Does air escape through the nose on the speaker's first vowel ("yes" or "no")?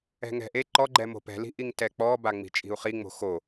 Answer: no